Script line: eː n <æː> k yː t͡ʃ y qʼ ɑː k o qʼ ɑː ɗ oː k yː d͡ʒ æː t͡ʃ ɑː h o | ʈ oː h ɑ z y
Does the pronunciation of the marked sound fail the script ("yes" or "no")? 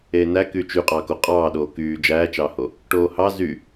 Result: yes